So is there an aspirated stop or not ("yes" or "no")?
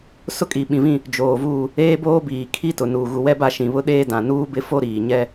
yes